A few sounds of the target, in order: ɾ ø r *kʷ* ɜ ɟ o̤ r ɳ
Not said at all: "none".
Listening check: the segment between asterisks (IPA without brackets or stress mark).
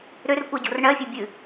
kʷ